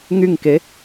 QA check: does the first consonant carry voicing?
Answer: yes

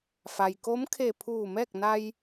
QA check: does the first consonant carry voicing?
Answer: no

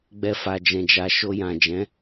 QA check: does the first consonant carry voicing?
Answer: yes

